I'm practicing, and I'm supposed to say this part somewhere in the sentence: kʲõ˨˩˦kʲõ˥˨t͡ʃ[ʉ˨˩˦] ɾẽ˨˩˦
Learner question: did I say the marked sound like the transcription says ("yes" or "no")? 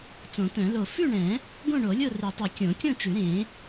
yes